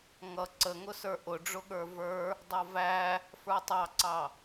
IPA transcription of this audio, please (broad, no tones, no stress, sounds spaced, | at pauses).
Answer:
ŋ ʌ ǀ ə ŋ ʊ s ə˞ ʔ ʊ ɖ͡ʐ ʊ ɠ ə˞ v ə˞ | dˤ ʌ v æ | f ə˞ tˤ ɑ ǀ ɑ